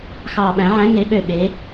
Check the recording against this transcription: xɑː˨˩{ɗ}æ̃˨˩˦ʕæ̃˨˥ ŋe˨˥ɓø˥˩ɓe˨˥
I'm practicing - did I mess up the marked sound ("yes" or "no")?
yes